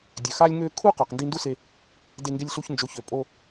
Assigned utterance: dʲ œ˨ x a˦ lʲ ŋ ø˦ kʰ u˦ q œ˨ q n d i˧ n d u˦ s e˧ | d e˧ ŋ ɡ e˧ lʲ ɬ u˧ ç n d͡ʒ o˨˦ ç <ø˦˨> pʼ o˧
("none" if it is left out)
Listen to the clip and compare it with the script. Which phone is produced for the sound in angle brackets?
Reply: ø˨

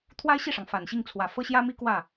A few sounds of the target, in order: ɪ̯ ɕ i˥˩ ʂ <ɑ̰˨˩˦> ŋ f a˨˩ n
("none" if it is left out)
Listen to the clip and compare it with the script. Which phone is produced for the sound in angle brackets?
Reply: ɑ˩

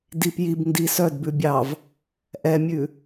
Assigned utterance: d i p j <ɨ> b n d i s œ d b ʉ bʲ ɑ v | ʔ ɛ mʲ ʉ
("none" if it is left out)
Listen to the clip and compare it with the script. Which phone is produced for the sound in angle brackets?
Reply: i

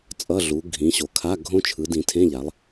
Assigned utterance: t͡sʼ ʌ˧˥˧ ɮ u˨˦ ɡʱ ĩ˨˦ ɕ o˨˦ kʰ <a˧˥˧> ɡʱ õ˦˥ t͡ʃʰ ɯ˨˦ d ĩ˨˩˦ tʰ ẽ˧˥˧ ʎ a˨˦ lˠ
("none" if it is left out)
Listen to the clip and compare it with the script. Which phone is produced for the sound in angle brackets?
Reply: a˧˥˧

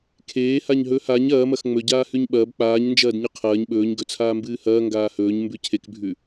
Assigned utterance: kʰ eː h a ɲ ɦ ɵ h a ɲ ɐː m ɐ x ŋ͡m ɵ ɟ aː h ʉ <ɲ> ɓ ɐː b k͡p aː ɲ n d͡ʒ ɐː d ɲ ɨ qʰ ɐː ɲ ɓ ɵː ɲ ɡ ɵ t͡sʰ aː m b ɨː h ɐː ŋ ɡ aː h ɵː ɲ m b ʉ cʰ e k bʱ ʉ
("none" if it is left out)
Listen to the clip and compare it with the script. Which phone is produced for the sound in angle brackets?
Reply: ɲ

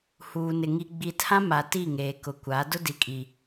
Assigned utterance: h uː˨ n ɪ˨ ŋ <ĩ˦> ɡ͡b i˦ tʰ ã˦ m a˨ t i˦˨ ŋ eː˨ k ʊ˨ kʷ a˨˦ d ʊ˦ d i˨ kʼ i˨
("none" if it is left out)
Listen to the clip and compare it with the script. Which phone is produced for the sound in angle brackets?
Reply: i˦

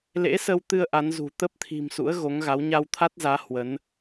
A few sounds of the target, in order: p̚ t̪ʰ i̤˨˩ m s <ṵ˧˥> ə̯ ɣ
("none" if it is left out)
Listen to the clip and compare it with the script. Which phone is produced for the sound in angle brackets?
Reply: ṵ˧˥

